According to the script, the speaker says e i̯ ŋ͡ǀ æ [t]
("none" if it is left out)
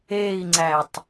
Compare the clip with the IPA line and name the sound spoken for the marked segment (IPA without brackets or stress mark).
tˤ